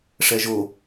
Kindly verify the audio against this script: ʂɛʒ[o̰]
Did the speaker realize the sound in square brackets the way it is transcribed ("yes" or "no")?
no